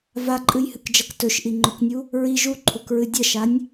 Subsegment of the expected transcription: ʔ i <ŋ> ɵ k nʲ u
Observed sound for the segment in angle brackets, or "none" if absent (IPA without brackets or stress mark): ŋ͡ǃ